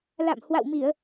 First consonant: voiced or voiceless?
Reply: voiced